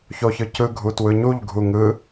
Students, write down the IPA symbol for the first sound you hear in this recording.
ç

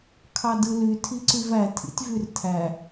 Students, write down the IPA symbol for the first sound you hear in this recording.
kʰ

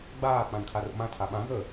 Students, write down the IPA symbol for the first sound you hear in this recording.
ɡ͡b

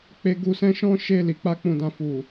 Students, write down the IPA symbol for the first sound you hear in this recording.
k͡p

